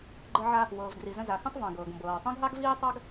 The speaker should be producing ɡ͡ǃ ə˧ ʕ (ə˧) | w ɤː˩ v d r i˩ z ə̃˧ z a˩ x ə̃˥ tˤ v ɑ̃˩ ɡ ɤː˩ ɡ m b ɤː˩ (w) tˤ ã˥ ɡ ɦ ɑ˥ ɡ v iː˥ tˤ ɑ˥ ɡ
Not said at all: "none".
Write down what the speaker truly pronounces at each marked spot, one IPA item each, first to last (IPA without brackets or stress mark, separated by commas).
a˧, w